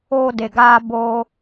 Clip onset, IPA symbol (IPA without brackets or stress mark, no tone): oː